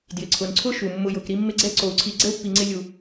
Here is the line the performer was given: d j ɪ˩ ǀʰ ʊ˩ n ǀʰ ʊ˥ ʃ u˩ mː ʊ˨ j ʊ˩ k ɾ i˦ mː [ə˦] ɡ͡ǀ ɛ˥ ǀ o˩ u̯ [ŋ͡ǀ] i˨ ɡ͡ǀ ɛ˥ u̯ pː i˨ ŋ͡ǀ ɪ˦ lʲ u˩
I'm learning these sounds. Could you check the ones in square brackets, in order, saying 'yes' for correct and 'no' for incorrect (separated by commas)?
no, no